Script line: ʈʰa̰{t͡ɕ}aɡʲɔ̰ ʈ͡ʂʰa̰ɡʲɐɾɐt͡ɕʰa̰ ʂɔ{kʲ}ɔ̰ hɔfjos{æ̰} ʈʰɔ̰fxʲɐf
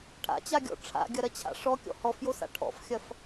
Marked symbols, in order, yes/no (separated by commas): yes, yes, no